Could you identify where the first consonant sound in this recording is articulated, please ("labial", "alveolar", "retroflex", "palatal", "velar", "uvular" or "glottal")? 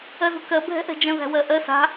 alveolar